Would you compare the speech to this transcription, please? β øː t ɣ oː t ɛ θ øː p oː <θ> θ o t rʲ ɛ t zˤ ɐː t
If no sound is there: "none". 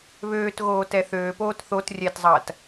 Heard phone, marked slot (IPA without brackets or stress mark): t